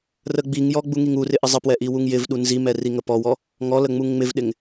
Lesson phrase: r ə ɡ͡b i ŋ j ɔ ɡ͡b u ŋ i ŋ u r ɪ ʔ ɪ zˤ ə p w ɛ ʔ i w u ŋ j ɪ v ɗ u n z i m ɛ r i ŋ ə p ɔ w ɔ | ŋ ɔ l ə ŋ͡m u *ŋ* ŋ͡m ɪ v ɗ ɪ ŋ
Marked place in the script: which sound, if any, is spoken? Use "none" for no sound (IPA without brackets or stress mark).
ŋ